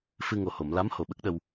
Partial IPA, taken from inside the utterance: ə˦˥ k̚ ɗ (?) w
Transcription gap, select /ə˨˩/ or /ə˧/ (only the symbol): ə˧